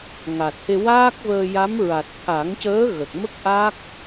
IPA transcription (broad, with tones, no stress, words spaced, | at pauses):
ŋa˨˩t̚he˧ waː˦˥k̚vəː˧ja˧˥m ɹa˨˩t̚ t̪ʰa˨˩˦ŋcəː˧˥ ɣə˨˩k̚mə˦˥k̚ ʔa˦˥k̚